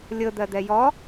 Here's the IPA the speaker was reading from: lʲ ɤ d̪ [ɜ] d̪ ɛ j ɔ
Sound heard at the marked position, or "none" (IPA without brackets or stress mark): ɜ